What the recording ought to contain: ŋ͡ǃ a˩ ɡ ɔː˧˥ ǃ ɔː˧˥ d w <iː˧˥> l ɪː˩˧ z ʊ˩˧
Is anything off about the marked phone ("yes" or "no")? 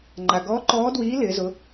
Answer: no